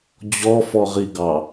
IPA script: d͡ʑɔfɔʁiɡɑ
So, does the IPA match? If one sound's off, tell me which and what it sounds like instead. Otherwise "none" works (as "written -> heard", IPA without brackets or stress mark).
none